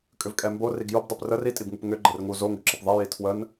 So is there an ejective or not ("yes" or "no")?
yes